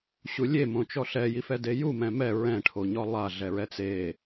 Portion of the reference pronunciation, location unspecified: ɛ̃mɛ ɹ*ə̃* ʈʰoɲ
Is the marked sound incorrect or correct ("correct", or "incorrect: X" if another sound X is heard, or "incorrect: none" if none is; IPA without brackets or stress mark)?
incorrect: ɛ̃